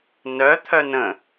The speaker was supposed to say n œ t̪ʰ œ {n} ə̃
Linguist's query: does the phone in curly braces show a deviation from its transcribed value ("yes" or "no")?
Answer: no